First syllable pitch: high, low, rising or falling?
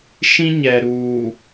high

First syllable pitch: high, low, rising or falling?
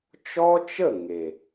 high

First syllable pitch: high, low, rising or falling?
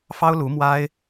high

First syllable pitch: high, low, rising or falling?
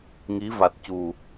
rising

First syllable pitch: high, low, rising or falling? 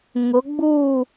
rising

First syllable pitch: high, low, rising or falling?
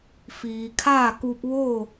low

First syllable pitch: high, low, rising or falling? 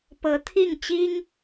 rising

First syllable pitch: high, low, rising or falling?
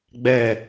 falling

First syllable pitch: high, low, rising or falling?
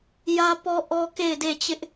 high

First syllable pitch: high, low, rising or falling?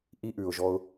high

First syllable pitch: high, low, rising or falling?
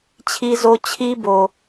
high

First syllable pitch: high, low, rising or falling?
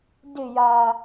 falling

